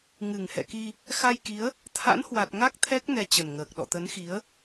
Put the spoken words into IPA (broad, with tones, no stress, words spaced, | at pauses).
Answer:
ŋɨ˨˩ŋhɛ̰˧˨ki˧ | xa˧jki˨˦ə̯ | t̪ʰa̰˧˥nhwa˨˩t̚ ŋa˦˥k̚ t̪ʰɛ˦˥k̚ nɛ˧t͡ɕə˨˩nŋəː˨˩k̚ ɗɔ̰˧˨t̪ə˨˦nxi˨˦ə̯